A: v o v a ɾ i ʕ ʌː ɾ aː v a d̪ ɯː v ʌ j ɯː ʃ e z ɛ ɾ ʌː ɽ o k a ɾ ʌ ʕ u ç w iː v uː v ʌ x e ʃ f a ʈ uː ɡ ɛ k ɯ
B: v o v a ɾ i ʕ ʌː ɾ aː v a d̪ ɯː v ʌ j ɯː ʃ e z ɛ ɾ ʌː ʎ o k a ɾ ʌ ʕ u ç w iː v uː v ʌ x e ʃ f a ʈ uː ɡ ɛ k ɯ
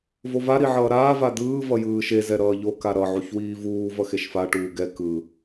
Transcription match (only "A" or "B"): B